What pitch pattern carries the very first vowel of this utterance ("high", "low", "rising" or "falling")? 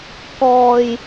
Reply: low